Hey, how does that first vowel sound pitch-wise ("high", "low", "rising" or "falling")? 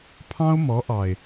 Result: high